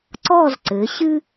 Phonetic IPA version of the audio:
ǀ ɔ˥˧ z ǀ ɘ˩˧ ɕ ɨ˥

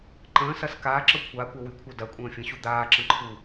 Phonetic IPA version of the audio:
ǃ ə̃ː s ɐ s k aː ǁ ɤ kʷʰ aː kʷ ɐ w y kʷʰ ɤ d ɐ kʷʼ ə̃ː fʲ ə̃ ɕ u d̪ aː ǁ ə̃ ǃʰ u

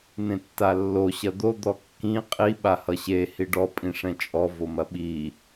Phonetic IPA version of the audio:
n̪ ẽ tː a lː o ɕ ɐ d̪ o d̪ ɔ kː ĩ qʼ i ɓ a h ʌ ɕ e h i ɖ ɔ pʼ ĩ ʂ ɛ̃ t͡ʃʼ ɔ v o m ɐ ɓ i

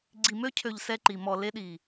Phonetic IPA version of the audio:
ɡ͡ǀ i˨ m ø˦ cʰ ø˨ ʎ s ɛ˦ ǃ i˨ m ɔ˨ l e˦ ɗ i˨

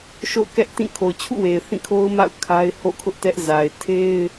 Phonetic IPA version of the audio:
ʃ o̰˦˨ ʊ̯ k ɛ˦ ʔ t ĩ˦˨ kʰ o˨ ʊ̯ t͡ɕʰ ṵ˦˨ w e˨ ɪ̯ θ ĩ˦˨ kʰ o˦ ʊ̯ m a̰˦˨ ʊ̯ kʰ a˦ ɪ̯ h o̰˦˨ kʰ ʊ˦ ʔ t ɛ˦ ʔ z a˨ ɪ̯ tʰ e˦ ɪ̯

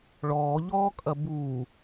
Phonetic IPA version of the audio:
ɭ ɔː ʎ ɔː kʼ ɐ b uː

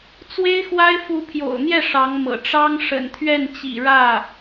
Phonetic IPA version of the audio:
t͡s w e˥ ɪ̯ x w a˥ ɪ̯ f u˧˥ pʰ j o̰˨˩ ʊ̯ n̪ j ɛ˥˩ ʂ ɑ˧˥ ŋ m ɤ̰˨˩ ʈ͡ʂ ɑ˥ ŋ ʂ ə̰˨˩ n t̪ʰ ɥ ɛ˥˩ n t͡ɕ ḭ˨˩ ɻ ä˥˩

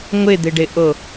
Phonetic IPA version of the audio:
ŋʷ ɪ d̪ ɪ ɖ ɪ ʔ o

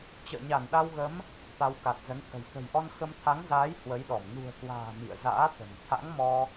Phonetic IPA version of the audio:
t͡ɕ ə̰ː˧˨ ɲ a˧˩ n ɗ a˧ w ɣ ə˨˦ m | t̪ a˨˦ w k a˨˩ t̚ z ə˨˦ n t̪ʰ ə̤˨˩ j t̪ ə̤˨˩ j ʔ ɔ˧ n x ə˧ m t̪ʰ a˨˦ ŋ z aː˨˦ j h w ə˨˦ j ɗ ɔ˧˩ m n ṳ˨˩ ə̯ k w a̤ː˨˩ m ḭ˧˨ ə̯ z a̰ː˧˥ t̪ ə̤˨˩ m t̪ʰ a̰˧˥ ŋ m ɔ˧

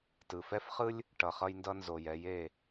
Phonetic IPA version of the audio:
t ɯ˨ f ɛ˦ f χ ɯ˦ lʲ | ʈ ʌ˨ χ ʌ˧ j n d ʌ˧ n z o˨ j ɛ˨˦ j e˦˨

